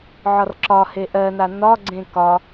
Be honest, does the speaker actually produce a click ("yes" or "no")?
yes